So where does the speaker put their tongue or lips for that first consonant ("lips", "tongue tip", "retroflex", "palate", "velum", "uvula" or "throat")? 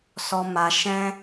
tongue tip